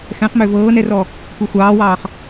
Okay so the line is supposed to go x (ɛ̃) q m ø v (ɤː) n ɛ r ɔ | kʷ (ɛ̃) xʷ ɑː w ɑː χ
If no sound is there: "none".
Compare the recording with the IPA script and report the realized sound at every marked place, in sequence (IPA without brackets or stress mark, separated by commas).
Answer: ɛ̃, ɤː, ɛ